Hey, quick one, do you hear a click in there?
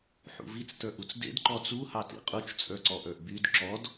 yes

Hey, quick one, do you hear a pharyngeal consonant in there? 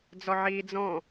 yes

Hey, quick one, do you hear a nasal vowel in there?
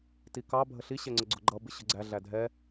no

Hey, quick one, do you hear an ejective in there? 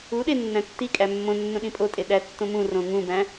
yes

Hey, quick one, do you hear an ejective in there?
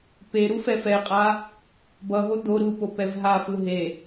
yes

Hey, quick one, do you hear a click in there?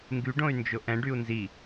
no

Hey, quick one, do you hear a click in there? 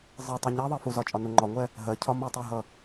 yes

